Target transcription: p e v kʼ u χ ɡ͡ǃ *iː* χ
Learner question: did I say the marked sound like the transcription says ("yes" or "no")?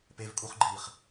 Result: yes